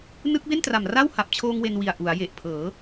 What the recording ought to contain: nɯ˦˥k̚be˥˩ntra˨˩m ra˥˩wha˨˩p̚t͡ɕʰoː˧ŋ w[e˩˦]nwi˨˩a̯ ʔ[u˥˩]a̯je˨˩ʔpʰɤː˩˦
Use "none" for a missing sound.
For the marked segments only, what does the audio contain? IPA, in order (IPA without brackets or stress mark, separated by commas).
e˧, u˩˦